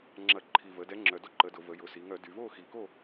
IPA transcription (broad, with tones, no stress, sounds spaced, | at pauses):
ŋ͡ǁ ɐ˧˩˧ ǃʰ i˨˩ v ə˩˧ d ɛ˨˥ ŋ͡ǁ œ˨˩ d o˥˨ ǃ ə˨˥ d ʊ˧˩˧ v ə˩˧ j ʊ˩˧ s i˩˧ ŋ œ˧˩˧ d y˩˧ v o˥˨ x i˨˩ k o˥˨